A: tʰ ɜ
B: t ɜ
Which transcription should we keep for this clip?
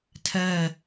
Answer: A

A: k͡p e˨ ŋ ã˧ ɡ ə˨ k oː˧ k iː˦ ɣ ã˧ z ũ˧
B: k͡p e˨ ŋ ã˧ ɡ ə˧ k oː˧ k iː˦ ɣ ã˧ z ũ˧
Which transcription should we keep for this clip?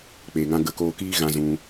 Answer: B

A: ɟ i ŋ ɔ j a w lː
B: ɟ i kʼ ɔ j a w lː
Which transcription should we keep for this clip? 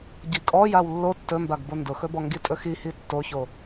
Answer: B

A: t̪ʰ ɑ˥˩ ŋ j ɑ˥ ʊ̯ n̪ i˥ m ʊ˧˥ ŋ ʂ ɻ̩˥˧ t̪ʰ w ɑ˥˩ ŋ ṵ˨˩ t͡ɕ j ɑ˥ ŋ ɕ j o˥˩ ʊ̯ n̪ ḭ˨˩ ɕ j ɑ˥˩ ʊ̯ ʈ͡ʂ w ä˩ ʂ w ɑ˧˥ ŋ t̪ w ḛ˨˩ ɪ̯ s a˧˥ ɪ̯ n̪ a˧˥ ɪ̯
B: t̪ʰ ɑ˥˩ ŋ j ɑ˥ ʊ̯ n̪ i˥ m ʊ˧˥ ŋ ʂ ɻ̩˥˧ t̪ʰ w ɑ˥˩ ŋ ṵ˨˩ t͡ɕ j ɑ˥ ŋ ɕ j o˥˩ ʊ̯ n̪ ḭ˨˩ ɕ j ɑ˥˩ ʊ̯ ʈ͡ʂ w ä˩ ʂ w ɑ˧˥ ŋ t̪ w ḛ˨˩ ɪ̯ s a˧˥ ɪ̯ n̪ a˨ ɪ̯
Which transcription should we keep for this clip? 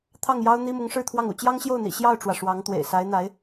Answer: A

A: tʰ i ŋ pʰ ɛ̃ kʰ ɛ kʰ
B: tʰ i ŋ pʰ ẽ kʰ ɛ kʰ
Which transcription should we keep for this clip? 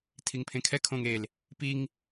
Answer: B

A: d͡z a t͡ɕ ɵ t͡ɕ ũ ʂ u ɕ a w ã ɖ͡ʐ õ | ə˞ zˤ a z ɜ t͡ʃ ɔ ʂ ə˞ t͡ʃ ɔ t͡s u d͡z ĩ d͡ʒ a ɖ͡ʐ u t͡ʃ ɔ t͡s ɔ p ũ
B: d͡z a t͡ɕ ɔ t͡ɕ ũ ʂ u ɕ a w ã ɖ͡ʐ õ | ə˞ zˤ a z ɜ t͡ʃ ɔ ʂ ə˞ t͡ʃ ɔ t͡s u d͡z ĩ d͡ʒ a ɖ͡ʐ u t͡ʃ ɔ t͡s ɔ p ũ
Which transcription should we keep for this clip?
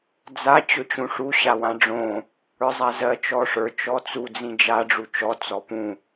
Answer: A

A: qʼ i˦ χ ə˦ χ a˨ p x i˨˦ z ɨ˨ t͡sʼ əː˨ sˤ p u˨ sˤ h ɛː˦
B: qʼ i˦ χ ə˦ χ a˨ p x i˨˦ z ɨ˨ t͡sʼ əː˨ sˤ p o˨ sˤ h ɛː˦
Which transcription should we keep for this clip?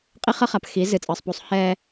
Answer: A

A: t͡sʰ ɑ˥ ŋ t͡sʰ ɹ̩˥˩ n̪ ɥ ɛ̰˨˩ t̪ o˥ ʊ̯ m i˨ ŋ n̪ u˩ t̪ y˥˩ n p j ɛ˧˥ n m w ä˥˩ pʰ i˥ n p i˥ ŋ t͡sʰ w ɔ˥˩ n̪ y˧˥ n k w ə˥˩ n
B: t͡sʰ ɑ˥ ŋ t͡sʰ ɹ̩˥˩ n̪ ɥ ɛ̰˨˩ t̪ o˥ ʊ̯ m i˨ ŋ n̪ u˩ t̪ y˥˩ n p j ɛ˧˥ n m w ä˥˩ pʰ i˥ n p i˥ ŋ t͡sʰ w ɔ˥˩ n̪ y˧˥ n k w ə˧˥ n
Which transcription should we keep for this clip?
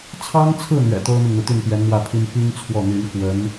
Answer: B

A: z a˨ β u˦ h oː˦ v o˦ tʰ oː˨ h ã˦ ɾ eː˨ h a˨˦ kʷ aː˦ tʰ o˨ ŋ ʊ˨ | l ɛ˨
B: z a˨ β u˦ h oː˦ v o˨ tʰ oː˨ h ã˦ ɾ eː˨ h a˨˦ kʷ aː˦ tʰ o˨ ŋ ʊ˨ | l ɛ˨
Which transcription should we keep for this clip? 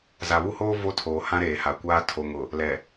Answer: A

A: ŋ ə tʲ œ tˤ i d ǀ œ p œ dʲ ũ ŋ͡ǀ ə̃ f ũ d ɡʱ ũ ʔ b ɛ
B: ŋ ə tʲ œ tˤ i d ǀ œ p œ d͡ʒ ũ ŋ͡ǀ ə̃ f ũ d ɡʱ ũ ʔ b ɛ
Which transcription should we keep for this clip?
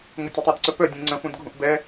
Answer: A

